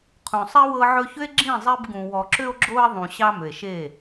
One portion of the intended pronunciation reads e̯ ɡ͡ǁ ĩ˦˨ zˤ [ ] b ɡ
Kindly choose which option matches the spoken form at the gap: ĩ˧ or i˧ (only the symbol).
i˧